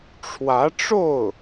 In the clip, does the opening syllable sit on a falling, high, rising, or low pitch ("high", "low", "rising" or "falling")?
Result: rising